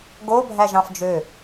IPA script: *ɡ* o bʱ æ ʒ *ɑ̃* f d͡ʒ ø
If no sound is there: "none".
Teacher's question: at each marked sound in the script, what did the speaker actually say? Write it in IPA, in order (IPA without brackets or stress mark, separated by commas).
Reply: ɡ, ɑ̃